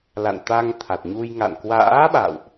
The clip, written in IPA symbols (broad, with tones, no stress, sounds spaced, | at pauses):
l a̰˧˨ n t̪ a˧ ŋ t̪ʰ a˨˩ t̚ ɲ u˧ j ŋ a̰˧˨ n k w a̰ː˧˥ ɓ a̰˧˨ w ʔ